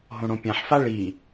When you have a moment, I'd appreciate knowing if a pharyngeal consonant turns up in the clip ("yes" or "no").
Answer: yes